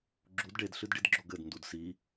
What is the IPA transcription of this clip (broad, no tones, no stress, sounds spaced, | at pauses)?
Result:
ɡ͡ǁ u d ɖ e d ɬ ɨ d ɖ i d ɡ͡ǁ o ɡ ɘ d n d u d s i